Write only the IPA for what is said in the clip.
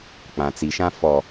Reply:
k͡p ã˨ t͡s i˨ ʃ ã˦ f ɔ˨

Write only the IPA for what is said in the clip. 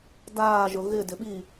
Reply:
d aː ʒ ʊ ɣ ɪ d ɪ ɓ i

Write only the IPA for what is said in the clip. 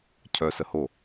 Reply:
cʰ œ s ə h o

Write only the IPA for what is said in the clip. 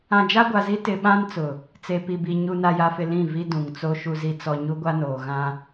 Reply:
ã˨ d͡ʒ a˦ ɡʷ a˨ z i˦ t ɪ˨ ɓ ã˦ n t͡s ʊ˨ | t͡s e˨ p i˨ b i˨ ɲ u˨ n a˨ j a˨ f ɪ˨ l ĩ˦˨ v i˦ d ũ˨ ŋ t͡s o˦ ʃ u˨ z i˨ t͡s ɔ˨ ɲ u˦ ɡʷ a˦ n oː˨ ɣ ã˦

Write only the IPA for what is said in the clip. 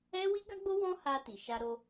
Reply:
ɛ˦ w i˦ ɡ a˦ ɡ͡b o˦ w ɔ̃˦ h a˧ t i˨ ʃ a˧ ɾ o˧

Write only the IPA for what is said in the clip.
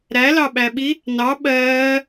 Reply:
ɾ æ l ɑ ɓ æ ɓ i | n ɑ ɓ ɜː

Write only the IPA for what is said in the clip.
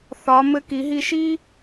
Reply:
θ ɒ˩˧ m ɘ˧ k i˩˧ ɦ i˧ ʃ i˥

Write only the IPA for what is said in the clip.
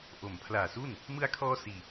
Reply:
ʔ o˩˦ m pʰ l aː˨˩ s u˥˩ n | m ɯ˧ a̯ kʰ ɔː˧ s iː˨˩

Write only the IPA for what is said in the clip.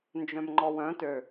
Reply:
n d͡ʒ œ̃ m ŋ͡ǃ ɔ w œ̃ t ø

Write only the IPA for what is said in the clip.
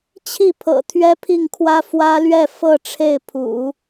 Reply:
t͡ɕʰ i˥˩ pʰ ɤ̰˨˩ t̪ʰ ɥ ɛ˥ pʰ i˥˩ ŋ kʰ w ä˥ f w ä˥ l ɥ ɛ˥˧ f ɤ˥˧ ʈ͡ʂʰ e˥˩ ɪ̯ pʰ ṵ˨˩˦

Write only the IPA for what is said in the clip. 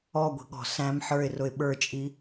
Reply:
ɔ ɡʷ i̤ ɠ ɔ̤ s æ̃ m ħ ə˞ ɪ̯ r ʊ ɪ̯ ɓ ə˞ t͡ʃʼ i

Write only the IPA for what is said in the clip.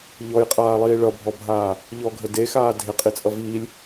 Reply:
ʎ ɔ j qʼ aː lˠ iː ɭ ʌ bʱ ɔ bʱ aː | ʎ ɔ ɡʱ ə d e x aː dʱ ɪ qʼ i t͡sʼ ʌ v iː lʲ

